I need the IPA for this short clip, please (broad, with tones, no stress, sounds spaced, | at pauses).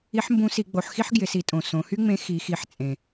i˧˥ ħ m b ũ˧˥ s i˩˧ ɡ͡b o˩˧ ħ x i˥ ħ ɡ j ɪ˩˧ s i˩˧ tʼ õ˩ s õ˩˧ h y˥ ŋ͡m ẽ˧˥ x i˩˧ x i˩˧ ħ t͡sʼ ẽ˩